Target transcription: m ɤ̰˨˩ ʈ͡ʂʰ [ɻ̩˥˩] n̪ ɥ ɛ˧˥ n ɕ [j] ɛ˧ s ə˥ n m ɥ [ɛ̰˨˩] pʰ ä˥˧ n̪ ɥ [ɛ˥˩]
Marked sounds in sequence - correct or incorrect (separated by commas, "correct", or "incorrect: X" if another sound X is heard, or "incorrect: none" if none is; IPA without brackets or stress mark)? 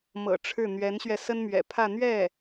correct, incorrect: ɥ, correct, correct